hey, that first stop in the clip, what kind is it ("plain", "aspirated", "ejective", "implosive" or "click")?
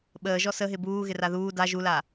implosive